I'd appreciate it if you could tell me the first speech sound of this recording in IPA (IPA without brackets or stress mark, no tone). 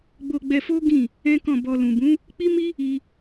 ɡ͡b